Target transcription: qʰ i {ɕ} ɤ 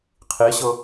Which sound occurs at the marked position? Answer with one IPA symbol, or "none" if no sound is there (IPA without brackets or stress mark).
ɕ